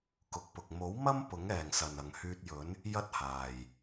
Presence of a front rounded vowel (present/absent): present